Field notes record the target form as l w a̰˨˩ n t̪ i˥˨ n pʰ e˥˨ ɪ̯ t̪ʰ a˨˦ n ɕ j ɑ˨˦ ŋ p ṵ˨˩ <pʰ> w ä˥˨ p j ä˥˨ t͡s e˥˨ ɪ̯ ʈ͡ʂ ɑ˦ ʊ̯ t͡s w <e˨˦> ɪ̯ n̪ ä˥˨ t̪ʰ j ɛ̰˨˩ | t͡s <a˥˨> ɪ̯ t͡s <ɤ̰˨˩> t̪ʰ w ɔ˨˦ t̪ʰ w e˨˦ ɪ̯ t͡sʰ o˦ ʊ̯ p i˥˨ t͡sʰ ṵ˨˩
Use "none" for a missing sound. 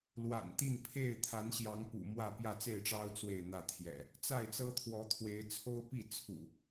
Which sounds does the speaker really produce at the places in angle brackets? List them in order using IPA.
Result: m, e˥˨, a˥˨, ɤ˦

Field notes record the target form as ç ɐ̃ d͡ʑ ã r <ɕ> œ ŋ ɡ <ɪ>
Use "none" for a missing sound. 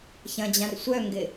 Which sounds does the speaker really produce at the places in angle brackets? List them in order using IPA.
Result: sʷ, ɪ

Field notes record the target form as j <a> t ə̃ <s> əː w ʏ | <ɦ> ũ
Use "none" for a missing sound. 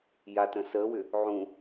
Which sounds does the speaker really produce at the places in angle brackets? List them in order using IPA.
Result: a, s, ʕ

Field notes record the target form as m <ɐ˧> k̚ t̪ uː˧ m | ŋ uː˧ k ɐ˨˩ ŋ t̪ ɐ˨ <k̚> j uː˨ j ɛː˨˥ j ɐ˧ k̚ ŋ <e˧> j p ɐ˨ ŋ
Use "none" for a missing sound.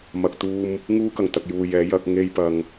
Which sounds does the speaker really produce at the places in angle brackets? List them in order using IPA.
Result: ɐ˨, k̚, e˧

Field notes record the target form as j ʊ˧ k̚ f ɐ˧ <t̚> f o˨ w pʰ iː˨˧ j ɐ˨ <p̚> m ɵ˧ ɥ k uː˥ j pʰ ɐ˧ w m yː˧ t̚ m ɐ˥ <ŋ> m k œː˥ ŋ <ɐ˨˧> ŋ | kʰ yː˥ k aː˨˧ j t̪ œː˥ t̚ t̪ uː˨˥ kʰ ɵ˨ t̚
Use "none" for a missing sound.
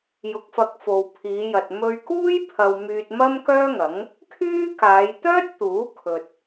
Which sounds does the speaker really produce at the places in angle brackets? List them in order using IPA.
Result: k̚, t̚, none, ɐ˨˥

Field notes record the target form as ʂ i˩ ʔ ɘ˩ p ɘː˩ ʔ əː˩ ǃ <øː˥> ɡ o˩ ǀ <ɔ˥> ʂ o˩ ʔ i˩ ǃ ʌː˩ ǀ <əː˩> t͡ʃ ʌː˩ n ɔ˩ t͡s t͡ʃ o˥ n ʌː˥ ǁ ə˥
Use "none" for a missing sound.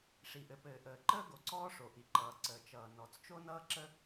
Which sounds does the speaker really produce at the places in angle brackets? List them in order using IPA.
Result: əː˥, ɔː˥, əː˩

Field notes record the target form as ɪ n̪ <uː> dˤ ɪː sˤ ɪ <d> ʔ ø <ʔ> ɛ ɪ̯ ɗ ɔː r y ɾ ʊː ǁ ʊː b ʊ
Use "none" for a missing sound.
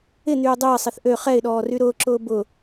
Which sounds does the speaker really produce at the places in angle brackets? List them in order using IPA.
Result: yː, θ, χ

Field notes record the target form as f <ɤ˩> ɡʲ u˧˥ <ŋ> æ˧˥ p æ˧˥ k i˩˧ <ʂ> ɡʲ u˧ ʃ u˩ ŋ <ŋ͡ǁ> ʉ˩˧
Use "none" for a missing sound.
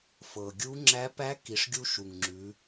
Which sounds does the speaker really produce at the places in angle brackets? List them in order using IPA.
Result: ɤ˩, ŋ͡ǁ, ʂ, ŋ͡ǁ

